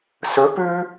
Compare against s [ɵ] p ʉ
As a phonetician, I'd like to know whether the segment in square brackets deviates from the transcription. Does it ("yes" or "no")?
no